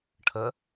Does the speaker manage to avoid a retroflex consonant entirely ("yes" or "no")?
no